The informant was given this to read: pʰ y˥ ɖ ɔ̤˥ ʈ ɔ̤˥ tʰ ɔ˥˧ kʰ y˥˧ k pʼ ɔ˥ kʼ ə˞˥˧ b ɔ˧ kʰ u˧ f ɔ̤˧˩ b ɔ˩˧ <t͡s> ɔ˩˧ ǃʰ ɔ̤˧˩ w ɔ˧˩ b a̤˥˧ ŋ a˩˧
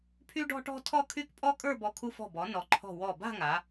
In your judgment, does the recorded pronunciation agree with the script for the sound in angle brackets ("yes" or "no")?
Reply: no